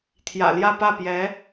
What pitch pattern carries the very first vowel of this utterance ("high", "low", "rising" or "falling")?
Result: low